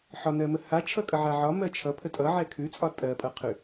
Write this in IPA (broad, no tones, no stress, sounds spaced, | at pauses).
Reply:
ħ ɒ n ɜ m ə h a t͡ʃʰ ʌ kʼ ʌ ʕ a ʕ ɒ m ɜ t͡ʃʰ ʌ pʰ ə tʼ ʌ ʕ ɛ kʰ ʉ t͡sʼ ɒ tʼ ɜ pʼ ʌ qʰ ʉ